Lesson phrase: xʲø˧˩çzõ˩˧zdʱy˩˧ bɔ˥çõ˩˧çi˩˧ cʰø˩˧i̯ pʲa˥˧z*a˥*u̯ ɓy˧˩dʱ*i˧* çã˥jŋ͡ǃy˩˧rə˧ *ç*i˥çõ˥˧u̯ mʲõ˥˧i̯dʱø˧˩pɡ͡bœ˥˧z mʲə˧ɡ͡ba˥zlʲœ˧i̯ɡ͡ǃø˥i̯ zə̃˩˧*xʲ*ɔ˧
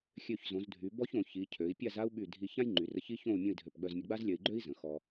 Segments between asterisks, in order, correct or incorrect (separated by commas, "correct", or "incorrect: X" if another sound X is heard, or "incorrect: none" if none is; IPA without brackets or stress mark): correct, correct, correct, incorrect: x